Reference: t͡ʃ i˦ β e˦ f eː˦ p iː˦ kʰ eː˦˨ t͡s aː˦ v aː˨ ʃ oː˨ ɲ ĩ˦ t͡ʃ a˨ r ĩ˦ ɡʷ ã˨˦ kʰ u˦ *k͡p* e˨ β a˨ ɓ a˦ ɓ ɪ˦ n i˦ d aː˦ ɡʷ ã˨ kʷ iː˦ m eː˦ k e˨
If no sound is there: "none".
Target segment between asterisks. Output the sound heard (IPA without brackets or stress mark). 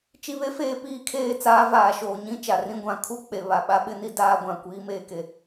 k͡p